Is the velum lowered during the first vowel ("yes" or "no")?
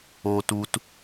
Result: no